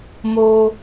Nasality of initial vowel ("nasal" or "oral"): oral